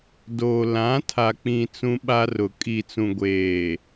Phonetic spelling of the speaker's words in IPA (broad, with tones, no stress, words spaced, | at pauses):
doː˨ lã˨˦ tʰa˨k͡pĩ˨ t͡sũ˦ɓa˦rʊ˨ kʼi˨t͡sũ˨ɡʷeː˨